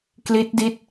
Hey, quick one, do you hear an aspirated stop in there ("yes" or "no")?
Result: no